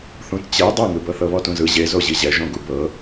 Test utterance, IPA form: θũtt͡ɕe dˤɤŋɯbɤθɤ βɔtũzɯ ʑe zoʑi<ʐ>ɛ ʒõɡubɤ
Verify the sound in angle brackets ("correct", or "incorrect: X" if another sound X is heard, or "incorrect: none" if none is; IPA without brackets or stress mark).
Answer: incorrect: ʑ